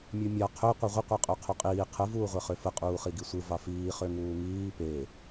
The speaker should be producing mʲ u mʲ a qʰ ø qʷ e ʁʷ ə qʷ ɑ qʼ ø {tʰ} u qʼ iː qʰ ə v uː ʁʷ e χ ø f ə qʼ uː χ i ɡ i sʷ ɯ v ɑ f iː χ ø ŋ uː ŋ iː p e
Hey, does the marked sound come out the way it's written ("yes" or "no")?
no